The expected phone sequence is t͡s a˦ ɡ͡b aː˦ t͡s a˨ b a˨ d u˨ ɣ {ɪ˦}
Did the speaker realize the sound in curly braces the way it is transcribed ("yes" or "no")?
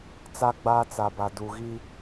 no